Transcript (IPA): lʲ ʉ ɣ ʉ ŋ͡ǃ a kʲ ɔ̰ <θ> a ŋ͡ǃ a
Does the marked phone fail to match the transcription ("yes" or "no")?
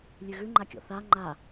no